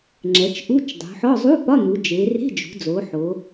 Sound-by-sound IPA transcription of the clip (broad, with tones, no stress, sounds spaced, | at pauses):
ŋ͡ǁ ɛ˩˧ t͡ʃ ʔ u˧˥˧ t͡ʃ dˤ ṳ˩˧ ħ ɔ˧˥˧ zˤ u˧˥˧ p ɒ˧˥˧ n̪ u˩˧ d͡ʒ e˩˧ r e̤˧˥˧ d͡ʒ ṳ˩˧ d͡z o˩˧ ħ o˩˧